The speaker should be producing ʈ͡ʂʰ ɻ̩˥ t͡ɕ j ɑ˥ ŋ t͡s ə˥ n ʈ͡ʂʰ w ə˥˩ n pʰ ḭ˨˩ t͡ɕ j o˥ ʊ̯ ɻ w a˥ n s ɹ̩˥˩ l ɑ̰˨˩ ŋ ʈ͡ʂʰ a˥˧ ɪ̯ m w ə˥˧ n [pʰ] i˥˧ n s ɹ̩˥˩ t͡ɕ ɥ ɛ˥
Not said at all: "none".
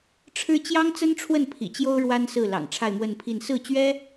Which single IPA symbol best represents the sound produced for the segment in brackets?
pʰ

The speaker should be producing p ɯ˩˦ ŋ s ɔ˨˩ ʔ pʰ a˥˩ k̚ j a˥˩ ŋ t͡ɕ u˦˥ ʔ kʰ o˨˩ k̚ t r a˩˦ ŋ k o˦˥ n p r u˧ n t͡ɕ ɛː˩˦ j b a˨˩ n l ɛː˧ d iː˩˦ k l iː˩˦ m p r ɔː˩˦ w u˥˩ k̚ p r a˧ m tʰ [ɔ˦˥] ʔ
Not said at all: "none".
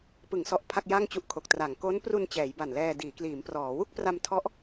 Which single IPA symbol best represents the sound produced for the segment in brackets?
ɔ˦˥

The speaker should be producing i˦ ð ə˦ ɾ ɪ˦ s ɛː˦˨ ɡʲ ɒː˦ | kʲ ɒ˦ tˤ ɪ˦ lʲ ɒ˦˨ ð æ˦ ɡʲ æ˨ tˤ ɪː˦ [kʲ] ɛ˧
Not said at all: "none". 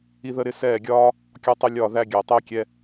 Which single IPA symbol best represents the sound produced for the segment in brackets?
kʲ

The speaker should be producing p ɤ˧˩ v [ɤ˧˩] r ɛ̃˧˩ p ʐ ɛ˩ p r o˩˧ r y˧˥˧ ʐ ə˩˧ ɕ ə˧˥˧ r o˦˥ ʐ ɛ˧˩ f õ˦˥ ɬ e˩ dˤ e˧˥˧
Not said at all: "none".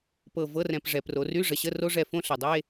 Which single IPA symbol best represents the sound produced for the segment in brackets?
ɤ˧˥˧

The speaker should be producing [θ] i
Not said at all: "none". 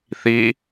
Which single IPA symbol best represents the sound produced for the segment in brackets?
θ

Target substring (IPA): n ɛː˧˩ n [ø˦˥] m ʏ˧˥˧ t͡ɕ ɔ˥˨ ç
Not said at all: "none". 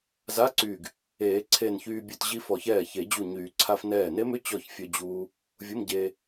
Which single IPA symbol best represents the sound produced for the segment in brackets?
e˦˥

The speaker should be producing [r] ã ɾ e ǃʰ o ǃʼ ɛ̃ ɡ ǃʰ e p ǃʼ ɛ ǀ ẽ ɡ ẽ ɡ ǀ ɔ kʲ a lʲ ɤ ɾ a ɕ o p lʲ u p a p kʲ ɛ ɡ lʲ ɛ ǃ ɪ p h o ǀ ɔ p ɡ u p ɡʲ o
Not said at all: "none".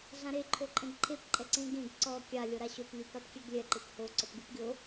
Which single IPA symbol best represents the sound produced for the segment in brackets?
ɮ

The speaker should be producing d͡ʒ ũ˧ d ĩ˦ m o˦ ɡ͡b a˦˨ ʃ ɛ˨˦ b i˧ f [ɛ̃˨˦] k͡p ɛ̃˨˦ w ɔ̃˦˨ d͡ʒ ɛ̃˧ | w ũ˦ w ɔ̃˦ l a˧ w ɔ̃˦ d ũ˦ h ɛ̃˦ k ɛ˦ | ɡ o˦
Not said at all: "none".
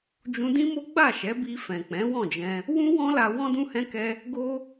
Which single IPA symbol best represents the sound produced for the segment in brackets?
ɛ̃˨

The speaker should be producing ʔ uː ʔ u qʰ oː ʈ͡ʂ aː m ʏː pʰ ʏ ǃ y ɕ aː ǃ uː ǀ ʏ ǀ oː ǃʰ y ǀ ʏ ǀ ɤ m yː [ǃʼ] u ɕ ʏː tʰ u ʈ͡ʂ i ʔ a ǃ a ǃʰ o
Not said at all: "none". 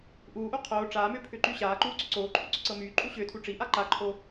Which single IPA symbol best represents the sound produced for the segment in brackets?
ǃʼ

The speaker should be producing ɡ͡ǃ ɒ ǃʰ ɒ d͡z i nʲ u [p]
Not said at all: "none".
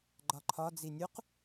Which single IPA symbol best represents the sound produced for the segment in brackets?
q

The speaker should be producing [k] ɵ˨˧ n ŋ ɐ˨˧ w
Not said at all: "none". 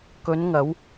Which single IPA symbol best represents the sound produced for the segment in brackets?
k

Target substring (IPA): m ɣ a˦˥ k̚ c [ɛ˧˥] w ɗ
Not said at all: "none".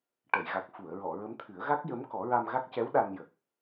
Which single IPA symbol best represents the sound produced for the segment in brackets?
ɛ˧˥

